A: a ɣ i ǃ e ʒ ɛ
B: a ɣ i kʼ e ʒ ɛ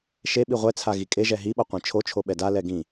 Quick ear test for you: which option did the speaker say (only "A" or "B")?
B